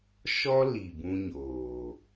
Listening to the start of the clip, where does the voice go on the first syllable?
high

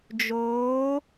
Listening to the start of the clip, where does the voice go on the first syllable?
rising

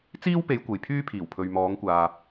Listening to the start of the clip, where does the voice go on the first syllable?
high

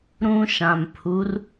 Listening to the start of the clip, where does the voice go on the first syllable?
high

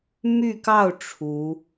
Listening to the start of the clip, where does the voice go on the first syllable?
falling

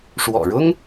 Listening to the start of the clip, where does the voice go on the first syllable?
low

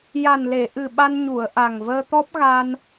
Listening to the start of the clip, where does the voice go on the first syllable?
low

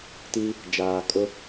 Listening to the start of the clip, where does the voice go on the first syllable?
high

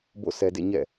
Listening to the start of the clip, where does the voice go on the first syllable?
falling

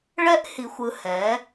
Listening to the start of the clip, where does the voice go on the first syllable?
high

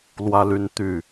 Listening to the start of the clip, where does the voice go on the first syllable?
high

